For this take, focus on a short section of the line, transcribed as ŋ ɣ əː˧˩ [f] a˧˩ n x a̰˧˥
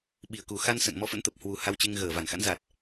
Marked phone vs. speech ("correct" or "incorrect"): incorrect